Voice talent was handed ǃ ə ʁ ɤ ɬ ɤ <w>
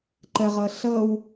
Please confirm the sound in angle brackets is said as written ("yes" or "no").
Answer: yes